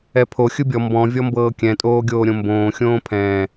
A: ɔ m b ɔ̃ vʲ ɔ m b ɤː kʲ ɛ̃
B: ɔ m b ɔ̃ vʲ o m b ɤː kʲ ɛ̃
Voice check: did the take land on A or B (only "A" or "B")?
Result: A